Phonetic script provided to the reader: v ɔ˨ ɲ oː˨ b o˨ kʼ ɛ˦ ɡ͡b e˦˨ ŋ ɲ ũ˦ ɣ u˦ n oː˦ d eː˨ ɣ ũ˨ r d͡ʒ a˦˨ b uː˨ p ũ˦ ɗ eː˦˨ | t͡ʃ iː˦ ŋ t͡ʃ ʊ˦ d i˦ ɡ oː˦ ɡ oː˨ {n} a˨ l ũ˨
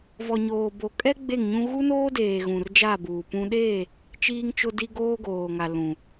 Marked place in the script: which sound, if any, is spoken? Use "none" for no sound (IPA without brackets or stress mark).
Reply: ŋ